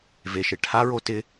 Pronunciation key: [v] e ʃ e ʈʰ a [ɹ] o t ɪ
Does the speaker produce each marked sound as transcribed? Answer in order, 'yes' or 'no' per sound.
yes, yes

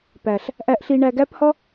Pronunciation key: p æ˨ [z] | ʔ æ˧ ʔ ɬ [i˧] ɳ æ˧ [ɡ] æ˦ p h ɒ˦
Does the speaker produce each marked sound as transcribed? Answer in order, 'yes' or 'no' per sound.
no, yes, yes

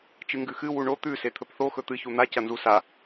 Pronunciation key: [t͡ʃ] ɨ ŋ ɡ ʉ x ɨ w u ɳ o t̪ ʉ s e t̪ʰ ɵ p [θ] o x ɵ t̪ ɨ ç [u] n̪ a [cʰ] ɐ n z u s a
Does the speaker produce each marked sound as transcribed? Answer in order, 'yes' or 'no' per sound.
yes, yes, yes, no

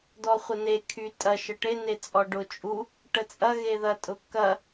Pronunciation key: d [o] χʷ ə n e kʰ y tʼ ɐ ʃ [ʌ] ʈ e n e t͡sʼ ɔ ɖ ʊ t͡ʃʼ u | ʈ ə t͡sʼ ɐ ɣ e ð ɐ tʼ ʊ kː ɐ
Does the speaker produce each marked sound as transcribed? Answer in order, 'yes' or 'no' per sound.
no, no

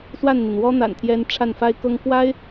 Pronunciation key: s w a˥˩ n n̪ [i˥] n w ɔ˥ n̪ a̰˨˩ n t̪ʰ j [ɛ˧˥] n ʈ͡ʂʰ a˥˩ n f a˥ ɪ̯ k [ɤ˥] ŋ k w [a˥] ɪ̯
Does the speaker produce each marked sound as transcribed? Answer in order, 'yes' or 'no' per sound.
no, yes, yes, yes

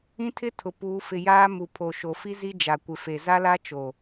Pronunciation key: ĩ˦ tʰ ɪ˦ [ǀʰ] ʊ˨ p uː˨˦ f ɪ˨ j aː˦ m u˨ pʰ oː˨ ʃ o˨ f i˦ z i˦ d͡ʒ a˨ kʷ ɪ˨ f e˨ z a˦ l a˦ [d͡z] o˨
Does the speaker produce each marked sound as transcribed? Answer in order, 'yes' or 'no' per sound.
no, no

